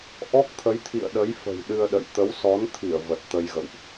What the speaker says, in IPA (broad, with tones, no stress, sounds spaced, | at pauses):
ʔ ɔ˦˥ k̚ t̪ʰ ə˨˦ j t̪ʰ ḭ˧˨ ə̯ ɗ ə˨˦ j f ə̤˨˩ j ɗ ɨ˧ ə̯ ɗ ə̰˧˨ j t̪ ə˨˦ w s ɔ˨˦ n t̪ʰ i˧˩ ə̯ v ə˨˩ t̚ t̪ ə˧ j ɣ ə̰˧˨ w ʔ